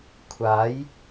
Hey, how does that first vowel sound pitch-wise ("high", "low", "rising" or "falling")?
rising